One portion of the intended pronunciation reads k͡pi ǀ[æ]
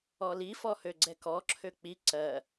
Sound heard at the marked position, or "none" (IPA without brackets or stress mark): ɜ